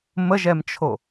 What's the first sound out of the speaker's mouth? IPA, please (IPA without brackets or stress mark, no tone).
m